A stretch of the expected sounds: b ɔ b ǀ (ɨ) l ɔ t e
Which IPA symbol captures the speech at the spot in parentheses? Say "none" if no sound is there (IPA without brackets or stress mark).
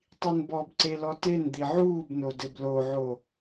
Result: e